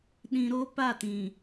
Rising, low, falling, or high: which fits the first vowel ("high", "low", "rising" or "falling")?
low